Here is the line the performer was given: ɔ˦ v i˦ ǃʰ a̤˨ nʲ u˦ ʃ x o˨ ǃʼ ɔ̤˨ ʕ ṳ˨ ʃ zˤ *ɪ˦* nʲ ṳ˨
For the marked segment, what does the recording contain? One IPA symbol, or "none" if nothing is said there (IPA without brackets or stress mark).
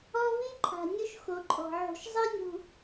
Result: i˦